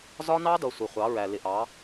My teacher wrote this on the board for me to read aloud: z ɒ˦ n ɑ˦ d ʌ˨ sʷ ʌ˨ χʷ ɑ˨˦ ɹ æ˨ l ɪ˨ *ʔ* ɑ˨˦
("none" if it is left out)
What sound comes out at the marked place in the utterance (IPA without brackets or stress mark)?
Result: ʔ